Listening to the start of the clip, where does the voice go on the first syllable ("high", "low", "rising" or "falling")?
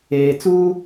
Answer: low